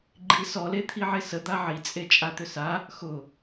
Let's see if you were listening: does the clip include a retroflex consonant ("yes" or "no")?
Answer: no